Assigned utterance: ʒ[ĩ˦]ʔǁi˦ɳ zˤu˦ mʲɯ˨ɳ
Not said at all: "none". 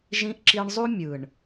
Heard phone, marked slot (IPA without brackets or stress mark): ĩ˦